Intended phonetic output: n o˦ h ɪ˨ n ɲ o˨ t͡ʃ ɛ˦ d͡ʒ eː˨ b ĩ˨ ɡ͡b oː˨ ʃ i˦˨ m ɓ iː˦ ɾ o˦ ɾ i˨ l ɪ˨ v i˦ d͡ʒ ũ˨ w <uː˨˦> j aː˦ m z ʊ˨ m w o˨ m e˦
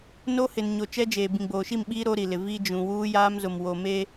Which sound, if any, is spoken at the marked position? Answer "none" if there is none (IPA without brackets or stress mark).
uː˦